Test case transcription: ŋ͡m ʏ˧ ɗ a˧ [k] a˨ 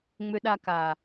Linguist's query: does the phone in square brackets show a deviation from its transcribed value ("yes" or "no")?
no